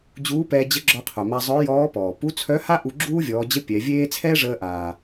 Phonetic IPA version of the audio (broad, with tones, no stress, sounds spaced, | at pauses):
d͡ʑ uː˧˥ p ɛː˧ d͡ʑ ə˧˥ ɡ͡ǁ ɔ˧ qʰ œ˩ m a˧ zˤ œ˧˥ j ɔː˧˥ p ɔː˩ p u˧˥ t͡sʰ œ˧˥ h a˥ ʔ u˧ ɡ͡ǁ uː˥ vʲ ɔː˩˧ d͡ʑ ə˧˥ pʲ ɛ˩˧ vʲ eː˥ t͡sʰ ɛː˥ ʐ əː˧ ʔ aː˩